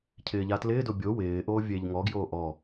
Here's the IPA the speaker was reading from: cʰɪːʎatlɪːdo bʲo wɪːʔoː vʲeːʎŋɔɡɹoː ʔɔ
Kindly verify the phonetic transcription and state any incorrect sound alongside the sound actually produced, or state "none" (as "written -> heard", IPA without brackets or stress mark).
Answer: ɹ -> j